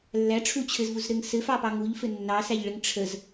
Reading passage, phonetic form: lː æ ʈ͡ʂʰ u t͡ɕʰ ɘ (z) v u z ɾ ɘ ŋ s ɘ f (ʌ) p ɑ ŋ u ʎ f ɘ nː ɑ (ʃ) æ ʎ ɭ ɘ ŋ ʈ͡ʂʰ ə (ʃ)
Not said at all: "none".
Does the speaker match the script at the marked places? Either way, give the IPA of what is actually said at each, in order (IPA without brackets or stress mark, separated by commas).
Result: z, ɑ, s, z